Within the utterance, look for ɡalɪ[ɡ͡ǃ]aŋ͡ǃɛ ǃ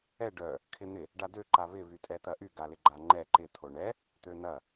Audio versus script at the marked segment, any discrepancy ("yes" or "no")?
no